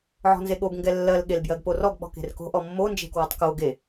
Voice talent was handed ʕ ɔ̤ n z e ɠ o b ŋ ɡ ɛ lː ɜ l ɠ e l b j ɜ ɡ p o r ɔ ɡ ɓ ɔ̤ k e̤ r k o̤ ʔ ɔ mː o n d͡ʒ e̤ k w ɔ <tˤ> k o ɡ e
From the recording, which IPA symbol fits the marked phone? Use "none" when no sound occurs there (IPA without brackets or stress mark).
tˤ